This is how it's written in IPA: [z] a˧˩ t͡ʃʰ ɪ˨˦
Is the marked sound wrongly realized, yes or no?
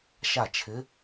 yes